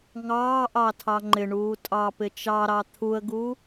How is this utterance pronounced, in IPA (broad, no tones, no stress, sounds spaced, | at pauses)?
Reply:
ŋ ɑː ʔ ɑ tʰ ɑ ŋ͡ǃ ɪ ɳ uː tʼ ɑ p ɪ t͡ʃ ɑ ɾ ɑ t̪ʰ u ə̯ ɡ u